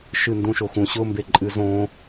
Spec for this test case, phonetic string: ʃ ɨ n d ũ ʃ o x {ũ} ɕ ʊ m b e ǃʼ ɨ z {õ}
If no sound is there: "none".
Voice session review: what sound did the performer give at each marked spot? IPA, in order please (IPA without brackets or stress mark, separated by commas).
ũ, õ